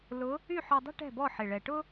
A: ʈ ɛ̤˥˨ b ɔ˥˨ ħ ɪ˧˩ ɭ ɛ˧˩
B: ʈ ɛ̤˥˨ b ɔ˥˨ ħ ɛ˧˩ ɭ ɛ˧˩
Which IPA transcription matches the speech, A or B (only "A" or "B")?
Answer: A